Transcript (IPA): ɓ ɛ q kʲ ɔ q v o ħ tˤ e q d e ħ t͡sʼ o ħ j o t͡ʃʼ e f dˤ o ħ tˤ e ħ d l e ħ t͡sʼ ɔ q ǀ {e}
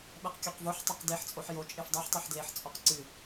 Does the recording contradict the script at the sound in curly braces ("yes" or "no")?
yes